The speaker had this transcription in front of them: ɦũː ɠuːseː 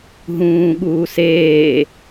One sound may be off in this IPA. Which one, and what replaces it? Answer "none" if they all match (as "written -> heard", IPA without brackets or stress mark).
none